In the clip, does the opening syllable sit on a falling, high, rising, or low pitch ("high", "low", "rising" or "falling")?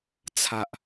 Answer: low